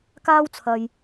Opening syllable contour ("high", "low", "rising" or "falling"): high